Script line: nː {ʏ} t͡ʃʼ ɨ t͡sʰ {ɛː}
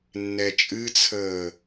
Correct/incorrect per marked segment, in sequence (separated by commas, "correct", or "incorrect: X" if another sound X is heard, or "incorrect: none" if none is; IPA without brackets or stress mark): incorrect: ɛ, incorrect: əː